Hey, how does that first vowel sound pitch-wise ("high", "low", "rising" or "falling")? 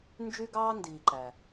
high